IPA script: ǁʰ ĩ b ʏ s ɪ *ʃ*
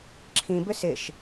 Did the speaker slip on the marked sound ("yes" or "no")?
no